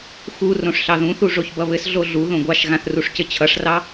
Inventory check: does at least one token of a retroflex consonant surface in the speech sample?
yes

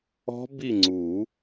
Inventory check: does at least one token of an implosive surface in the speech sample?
no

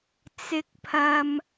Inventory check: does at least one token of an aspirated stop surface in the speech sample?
yes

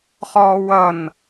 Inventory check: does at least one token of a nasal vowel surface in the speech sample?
no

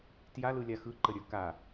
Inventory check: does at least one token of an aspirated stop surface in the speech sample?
no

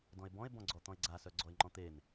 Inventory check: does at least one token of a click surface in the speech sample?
yes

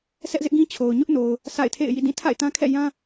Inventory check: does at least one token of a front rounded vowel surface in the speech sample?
no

